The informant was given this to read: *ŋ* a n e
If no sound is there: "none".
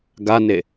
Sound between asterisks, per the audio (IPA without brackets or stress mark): ɡ